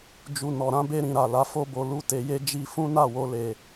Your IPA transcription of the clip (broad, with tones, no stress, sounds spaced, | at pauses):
d͡ʒ u˨ n ɔ˨ ɾ ã˨˦ b e˧ ɾ ĩ˨ ɾ a˨ l a˨˦ f o˦ b o˧ l u˦ t e˧ j e˦ d͡ʒ i˧ f ũ˦ n a˦˨ w o˧ l e˨